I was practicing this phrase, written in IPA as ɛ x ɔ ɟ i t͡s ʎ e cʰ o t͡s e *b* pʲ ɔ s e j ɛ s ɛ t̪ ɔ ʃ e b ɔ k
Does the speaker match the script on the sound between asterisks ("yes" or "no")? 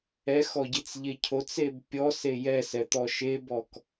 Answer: yes